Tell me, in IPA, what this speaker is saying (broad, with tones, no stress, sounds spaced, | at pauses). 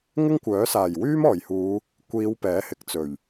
ŋ ɪ˥ ŋ kʷ œː˨˥ s aː˨˩ j w yː˥ m ɔː˨˩ j h uː˨˧ | kʷ iː˨˧ w p ɛː˨˥ h ɪ˨ k̚ t͡s ɵ˨˩ ɥ